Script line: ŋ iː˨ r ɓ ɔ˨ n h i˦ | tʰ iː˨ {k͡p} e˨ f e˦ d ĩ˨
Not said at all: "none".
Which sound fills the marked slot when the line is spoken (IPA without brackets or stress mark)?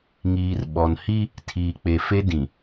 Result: k͡p